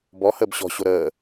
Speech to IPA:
b ɔ h əː b ɕ ɔ̤ ɕ o ɾ əː

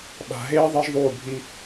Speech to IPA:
ɓ a̤˨ ɦ eː˦ ðˤ e˦ ʒ ðˤ uː˦˨ bʱ i˦

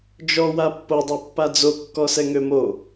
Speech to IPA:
d͡ʒ ɔ w a pː o dˤ ɐ pː a d͡z o kː ɔ s ɛ ŋ ø m o

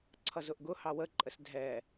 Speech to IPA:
ǀʰ ʌ z ʊ ʔ ɡ ʊ h ɑ w ə ǃʼ ə s dʱ ɛ

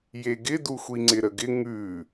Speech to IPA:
j e ɡ ɪ d u xʷ i ŋ͡ǀ ɪ ɾ ə ɡ ɪ ŋ ʉ

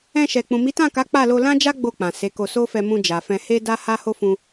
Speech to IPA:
ɛ̃˧ ʃ ɛ˨ k͡p ũ˨ m i˨˦ t ã˦˨ k a˨˦ k͡p a˦˨ l o˧ l ã˦ d͡ʒ a˦ ɡ͡b o˦˨ k͡p ã˨ s e˨˦ k o˧ s o˦ f ɛ˧ m ũ˧ d͡ʒ a˨ f ɛ̃˧ h e˦ d a˦ h a˦ h o˦ f ũ˧

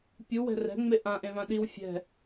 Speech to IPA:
pʲ u w ɛ̤ r ɛ̤ ŋ͡m e ʔ ã ʔ ẽ v ã ɗ i w fʲ ɛ̤

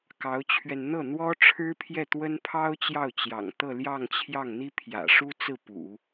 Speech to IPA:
k ɑ˧˥ ʊ̯ t͡ɕʰ ɥ ɛ˧ n n̪ ɤ˥˩ n̪ w ɔ˥ ʈ͡ʂʰ ɻ̩˥ pʰ j ɛ˥˩ t̪ w ə˥ n pʰ ɑ˥ ʊ̯ t͡ɕ j ɑ˥˩ ʊ̯ t͡ɕ j ɑ̰˨˩ ŋ t̪ ɤ˥˧ l j ɑ˥˧ ŋ t͡ɕʰ j ɑ˥˩ ŋ n̪ i˥ pʰ j ä̰˨˩ ʂ u˥ t͡s ɹ̩˥˩ p ṵ˨˩˦

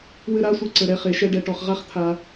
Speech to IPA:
w ɘ˧ ɾ a˨˦ sʷ e˨ ǀ ə˨ ɾ ɛ˨ χ e˨ ʃ ɛ˧ ɖ ɛ˨ ʈ ɔ˨ χ ʁ a˦ χ t̪ʰ a˧

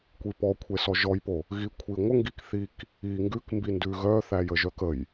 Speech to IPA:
kʷ i p ɔ kʷʰ e s ɔ ʒ ɔ j p o | ɣ i kʷʰ i ŋʷ ə ŋ ɡ i k θ i k | i ŋ ɡ ʉ k m b i n d ʉ ɣ œ θ æ j ə ʒ œ k ə j

